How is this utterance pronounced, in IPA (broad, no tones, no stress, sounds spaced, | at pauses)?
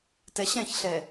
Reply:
t ɛ ɕ ɛ̃ ç ɬ ɛ